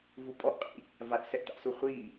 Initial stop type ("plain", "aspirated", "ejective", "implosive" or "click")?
ejective